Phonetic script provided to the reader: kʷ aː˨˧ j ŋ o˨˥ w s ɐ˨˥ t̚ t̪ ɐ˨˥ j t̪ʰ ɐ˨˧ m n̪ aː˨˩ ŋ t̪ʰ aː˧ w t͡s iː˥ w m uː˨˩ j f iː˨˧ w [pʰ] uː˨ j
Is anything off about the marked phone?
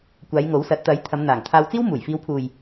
no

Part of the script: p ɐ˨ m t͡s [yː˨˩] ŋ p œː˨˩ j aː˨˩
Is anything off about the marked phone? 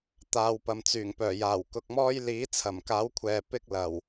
no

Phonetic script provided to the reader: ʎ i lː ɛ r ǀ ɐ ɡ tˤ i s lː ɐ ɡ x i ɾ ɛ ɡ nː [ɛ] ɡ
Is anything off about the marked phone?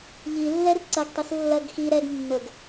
yes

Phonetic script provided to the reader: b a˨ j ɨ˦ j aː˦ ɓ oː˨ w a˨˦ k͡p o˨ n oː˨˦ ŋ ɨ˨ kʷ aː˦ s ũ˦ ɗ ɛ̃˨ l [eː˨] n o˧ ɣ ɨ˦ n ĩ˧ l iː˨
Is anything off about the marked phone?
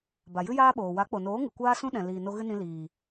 yes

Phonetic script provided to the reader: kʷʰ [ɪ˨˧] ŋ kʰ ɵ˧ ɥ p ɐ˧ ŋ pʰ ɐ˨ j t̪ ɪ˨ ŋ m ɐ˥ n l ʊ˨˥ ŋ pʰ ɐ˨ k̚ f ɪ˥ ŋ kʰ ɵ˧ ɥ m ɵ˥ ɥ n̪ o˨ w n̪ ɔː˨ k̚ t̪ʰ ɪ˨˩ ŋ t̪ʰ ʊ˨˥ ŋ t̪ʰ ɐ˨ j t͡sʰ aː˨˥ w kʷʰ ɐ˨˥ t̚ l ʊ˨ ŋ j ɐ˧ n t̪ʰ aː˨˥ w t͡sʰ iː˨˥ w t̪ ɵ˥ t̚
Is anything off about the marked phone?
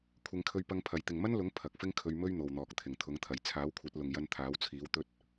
no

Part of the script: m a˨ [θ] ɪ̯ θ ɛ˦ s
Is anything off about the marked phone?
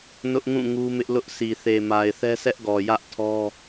yes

